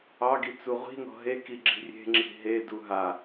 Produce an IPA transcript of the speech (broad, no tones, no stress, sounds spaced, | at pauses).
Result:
ɑ ɡ i t͡s u ʁʷ i̤ n ɔ̤ ɦ e k i ɡ͡ǁ i̤ rʲ e̤ ŋ͡ǁ i̤ ɦ e d u ɦ a